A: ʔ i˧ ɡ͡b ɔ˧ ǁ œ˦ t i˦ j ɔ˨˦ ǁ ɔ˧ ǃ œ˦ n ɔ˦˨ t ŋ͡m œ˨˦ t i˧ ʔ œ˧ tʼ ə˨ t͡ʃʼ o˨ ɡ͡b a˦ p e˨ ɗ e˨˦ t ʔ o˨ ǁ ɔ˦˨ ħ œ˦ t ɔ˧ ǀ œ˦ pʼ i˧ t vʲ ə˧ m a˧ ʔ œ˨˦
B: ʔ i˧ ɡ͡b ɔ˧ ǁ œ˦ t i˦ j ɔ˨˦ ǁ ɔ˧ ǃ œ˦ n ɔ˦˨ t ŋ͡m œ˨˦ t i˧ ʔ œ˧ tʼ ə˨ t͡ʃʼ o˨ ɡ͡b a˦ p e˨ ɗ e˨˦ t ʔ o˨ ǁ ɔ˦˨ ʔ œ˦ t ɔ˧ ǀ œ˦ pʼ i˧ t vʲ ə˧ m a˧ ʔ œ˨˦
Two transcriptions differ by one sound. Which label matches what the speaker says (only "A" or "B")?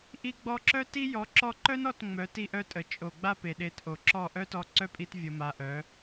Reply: B